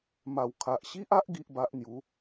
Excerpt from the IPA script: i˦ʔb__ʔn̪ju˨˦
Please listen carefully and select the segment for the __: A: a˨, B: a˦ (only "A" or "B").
B